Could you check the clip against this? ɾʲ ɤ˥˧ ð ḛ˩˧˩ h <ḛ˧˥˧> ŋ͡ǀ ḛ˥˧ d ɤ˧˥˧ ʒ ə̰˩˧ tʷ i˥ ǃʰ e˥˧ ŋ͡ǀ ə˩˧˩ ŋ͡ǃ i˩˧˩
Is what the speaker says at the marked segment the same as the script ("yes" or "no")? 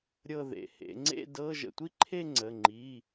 no